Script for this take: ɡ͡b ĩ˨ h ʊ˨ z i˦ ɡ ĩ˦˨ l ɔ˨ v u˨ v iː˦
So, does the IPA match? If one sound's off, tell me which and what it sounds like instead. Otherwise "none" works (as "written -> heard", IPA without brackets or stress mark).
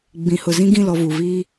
i˦ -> ĩ˦